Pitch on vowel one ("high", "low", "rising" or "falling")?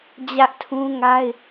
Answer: high